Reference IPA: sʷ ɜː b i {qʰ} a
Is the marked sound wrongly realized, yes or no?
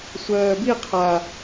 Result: no